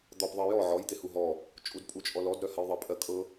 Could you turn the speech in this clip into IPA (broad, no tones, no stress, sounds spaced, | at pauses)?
d̪ ɔ p ðˤ ɜ j ɔ ʕ ɔ j d̪ e h u ɦ ɔ | t͡ʃʼ u d pʼ u t͡ʃʼ ɔ l ɔ d ɾ œ h ɜ j ðˤ ɜ pʼ ɜ kʼ ɤ